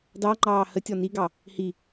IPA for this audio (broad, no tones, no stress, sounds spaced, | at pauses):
d ɑ ŋ͡ǃ ɑː h ə tʲ ɔ n i ɡ ɑ | h i